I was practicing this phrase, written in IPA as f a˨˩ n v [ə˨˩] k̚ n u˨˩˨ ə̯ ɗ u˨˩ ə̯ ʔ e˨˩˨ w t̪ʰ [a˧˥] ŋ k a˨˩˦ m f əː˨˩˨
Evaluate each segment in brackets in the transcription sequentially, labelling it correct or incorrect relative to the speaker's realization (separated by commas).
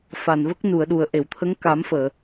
incorrect, incorrect